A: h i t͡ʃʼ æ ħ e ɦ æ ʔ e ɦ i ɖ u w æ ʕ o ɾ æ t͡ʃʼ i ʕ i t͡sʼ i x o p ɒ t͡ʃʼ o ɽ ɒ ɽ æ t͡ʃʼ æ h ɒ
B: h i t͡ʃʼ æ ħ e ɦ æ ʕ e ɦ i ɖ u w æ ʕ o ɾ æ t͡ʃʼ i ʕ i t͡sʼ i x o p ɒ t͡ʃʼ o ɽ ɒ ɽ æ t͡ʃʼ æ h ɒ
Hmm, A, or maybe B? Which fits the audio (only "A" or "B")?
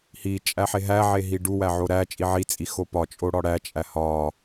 B